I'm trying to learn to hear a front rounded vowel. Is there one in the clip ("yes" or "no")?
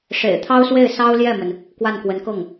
no